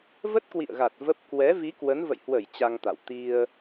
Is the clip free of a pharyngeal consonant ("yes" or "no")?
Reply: yes